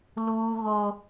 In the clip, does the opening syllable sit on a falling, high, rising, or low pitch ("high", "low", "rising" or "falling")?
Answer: high